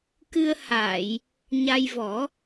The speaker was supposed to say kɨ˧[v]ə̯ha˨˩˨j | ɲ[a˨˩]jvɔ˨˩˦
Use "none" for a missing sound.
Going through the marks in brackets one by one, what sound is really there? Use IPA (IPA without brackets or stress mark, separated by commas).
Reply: none, a˧